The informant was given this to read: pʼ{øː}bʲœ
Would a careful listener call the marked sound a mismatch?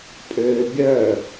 no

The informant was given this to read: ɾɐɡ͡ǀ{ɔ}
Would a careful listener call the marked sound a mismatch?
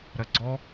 no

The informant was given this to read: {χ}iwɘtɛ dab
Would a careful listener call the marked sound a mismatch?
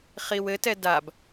no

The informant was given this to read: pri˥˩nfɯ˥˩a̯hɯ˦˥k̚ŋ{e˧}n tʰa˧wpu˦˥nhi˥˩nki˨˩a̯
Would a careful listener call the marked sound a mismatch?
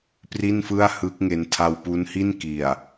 no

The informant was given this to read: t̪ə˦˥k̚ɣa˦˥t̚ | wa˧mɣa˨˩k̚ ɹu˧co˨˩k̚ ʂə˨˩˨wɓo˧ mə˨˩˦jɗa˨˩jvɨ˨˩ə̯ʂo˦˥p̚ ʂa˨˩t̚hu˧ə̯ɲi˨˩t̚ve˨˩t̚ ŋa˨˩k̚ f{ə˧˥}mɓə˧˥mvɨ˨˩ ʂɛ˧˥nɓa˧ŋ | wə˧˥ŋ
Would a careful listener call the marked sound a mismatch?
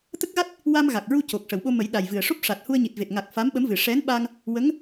yes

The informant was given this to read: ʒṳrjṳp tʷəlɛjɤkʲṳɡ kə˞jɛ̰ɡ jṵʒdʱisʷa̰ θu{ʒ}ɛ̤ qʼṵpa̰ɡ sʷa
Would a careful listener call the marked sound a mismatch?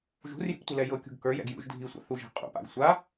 no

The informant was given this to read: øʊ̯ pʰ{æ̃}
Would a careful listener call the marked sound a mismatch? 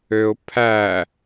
yes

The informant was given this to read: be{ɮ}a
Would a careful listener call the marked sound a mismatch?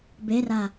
yes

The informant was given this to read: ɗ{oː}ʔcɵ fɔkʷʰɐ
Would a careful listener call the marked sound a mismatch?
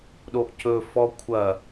yes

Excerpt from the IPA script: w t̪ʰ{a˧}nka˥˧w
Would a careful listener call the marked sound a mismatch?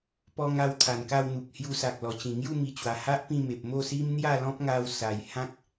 yes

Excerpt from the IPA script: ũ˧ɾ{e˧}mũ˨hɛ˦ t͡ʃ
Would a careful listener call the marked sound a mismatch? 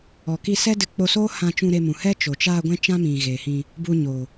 no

